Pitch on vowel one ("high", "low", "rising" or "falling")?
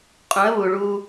rising